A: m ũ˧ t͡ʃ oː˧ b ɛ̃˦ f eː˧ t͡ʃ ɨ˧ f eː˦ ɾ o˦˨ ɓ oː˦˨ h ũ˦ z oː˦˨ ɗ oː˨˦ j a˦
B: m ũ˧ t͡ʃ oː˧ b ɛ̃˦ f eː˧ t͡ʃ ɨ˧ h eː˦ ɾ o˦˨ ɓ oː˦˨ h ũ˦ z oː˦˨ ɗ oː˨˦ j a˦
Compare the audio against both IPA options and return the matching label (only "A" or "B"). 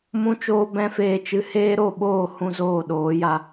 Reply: B